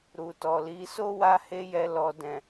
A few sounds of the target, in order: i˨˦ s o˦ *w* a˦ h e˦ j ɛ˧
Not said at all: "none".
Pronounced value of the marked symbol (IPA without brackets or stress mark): w